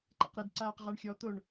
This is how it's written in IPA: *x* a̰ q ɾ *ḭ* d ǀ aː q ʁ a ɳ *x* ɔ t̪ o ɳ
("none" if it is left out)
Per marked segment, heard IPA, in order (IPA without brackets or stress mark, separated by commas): ǃ, i, xʲ